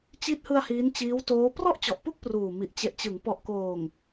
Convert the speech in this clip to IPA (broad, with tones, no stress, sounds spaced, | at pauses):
t͡ɕ i˦˥ t̚ h ɯ˧ a̯ h iː˦˥ n t͡ɕ iː˦˥ w t oː˦˥ p r ɔ˥˩ ʔ t͡ɕ ɔ˨˩ ʔ p u˥˩ k̚ p r uː˨˩ m i˨˩ ʔ t͡ɕ e˨˩ ʔ t͡ɕ ɯ˩˦ ŋ p ɔ˨˩ ʔ k oː˨˩ ŋ